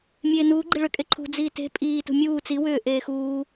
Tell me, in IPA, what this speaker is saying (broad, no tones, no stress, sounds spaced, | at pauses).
mʲ eː n uː ɡ͡ǃ i ɭ ʏ kʼ e ǃʰ ṳ d͡z iː t e̤ pʼ iː t ṳ mʲ uː t͡s i w ʏː ʔ eː x uː